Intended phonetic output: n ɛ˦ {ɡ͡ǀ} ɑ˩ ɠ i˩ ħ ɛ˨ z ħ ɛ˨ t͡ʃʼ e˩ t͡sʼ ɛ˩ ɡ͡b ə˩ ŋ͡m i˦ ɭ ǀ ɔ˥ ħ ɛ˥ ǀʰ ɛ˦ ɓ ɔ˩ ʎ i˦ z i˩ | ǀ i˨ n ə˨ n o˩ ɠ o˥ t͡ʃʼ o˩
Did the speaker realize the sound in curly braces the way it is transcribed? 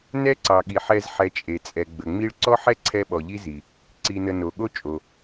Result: no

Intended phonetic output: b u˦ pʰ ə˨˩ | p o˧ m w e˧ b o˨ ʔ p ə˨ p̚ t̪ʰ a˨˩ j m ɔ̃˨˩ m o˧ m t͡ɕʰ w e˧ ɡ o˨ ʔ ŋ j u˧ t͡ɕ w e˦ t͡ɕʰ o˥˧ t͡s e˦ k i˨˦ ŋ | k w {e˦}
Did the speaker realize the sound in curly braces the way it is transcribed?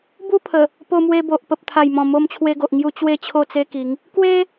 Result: yes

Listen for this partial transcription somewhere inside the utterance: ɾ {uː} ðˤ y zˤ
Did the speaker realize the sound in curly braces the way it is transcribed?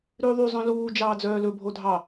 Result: no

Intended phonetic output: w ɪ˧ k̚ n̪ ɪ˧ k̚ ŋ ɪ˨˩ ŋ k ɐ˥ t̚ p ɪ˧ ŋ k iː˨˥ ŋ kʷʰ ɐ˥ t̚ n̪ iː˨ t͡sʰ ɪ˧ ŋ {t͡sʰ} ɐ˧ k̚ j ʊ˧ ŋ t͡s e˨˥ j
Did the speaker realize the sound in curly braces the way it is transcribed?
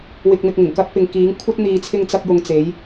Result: no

